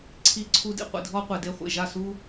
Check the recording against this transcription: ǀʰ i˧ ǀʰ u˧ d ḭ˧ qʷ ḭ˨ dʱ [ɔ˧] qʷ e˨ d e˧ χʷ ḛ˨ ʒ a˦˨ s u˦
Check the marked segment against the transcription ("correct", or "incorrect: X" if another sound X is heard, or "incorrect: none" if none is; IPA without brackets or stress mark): incorrect: ɔ˦